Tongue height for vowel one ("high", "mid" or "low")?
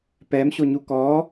mid